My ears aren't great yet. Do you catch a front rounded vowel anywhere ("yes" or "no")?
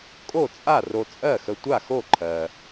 no